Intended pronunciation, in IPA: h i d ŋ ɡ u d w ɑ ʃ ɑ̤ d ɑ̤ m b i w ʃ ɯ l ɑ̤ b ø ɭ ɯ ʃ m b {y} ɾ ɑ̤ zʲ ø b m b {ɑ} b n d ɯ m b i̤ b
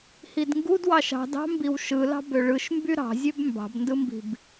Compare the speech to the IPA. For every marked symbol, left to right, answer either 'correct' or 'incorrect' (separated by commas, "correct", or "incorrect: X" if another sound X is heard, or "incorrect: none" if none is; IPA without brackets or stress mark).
correct, incorrect: ɑ̤